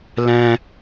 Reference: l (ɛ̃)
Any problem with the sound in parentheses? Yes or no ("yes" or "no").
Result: no